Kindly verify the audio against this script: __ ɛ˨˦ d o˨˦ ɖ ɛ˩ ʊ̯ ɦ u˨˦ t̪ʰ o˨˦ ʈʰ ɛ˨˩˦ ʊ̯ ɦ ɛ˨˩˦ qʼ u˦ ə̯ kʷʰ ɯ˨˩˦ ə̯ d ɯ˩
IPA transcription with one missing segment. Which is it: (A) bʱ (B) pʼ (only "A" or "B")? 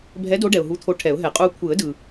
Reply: A